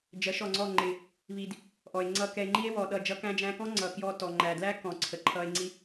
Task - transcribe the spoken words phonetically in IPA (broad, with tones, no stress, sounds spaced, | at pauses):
d͡ʒ ɜ˨˦ ʃ ɔ˨ ŋ͡ǀ ɔ˦˨ ŋ͡ǃ ɪ˨ | β i˨ d | ʔ ɔ˨ e̯ ŋ͡ǀ ʌ˧ k ɛ˧ e̯ ŋ͡ǃ i˦ e̯ w ɔ˨ ɗ ʌ˦˨ d͡ʒ ʌ˧ k æ̃˧ d͡ʒ æ̃˧ k ɔ̃˦ ŋ͡ǀ ʌ˨ k j ɔ˧ t ɔ˨ ŋ͡ǃ æ˨ d l æ˦ k ɔ̃˨ ǀʰ ə˨ ǃʰ ʌ˧ e̯ ŋ͡ǀ i˦